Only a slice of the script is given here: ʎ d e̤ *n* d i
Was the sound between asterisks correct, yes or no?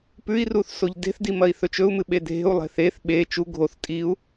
no